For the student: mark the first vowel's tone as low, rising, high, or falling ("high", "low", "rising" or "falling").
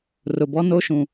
low